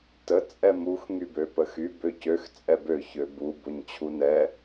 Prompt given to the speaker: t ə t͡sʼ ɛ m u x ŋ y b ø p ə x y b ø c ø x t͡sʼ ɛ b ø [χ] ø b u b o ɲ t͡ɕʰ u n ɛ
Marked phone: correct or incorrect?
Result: incorrect: ç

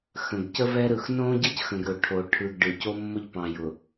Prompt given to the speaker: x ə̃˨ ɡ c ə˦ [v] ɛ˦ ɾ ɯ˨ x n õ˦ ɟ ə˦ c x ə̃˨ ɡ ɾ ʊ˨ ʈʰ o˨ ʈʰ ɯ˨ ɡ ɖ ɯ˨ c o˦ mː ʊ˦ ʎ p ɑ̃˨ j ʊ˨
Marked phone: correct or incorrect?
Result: correct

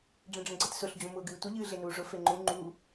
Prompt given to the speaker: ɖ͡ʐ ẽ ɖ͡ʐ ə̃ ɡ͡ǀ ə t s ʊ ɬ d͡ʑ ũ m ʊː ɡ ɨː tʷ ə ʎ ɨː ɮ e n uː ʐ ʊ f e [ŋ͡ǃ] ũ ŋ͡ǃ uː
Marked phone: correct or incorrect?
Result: correct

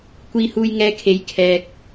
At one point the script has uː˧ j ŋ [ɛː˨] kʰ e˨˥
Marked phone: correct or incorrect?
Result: incorrect: ɛː˧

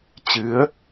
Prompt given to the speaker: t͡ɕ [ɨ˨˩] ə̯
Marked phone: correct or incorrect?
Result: incorrect: ɨ˨˦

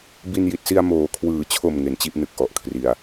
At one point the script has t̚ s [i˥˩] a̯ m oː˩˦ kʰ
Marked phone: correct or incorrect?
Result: incorrect: i˧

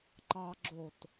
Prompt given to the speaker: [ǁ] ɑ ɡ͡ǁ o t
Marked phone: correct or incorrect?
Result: incorrect: ǃ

